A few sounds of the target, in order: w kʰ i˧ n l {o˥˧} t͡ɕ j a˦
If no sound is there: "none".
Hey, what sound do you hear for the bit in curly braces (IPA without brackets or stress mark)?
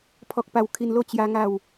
o˥˧